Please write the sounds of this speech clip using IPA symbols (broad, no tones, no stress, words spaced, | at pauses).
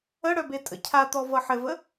əɽœbe tʼə̰cʰat̪ɔ vʌħɘvə